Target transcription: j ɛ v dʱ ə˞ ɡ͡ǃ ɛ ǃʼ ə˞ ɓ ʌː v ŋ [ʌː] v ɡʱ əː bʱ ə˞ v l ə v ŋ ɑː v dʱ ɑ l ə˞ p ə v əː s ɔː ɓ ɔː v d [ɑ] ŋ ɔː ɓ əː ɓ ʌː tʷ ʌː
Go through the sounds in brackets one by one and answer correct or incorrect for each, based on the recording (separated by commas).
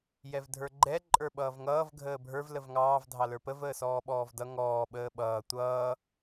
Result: correct, incorrect